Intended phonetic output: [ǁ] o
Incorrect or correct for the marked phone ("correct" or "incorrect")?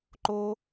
incorrect